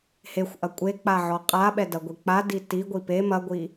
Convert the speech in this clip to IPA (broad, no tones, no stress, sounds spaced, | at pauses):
h e xʷ ʔ ɐ kʷʼ e k͡p a ʕ ɔ qʼ a ɓ ɛ d ɐ ɡʷ i k͡p a d i t i ɡʷ i p e m ɐ ɡʷ i